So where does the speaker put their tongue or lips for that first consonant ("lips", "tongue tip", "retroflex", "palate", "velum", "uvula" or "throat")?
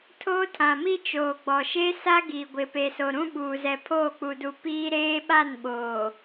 tongue tip